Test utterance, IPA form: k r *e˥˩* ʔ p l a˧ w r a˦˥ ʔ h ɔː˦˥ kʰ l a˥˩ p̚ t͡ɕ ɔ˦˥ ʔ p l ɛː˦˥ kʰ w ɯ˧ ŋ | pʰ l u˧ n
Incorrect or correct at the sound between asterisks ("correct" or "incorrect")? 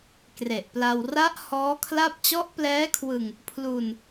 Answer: incorrect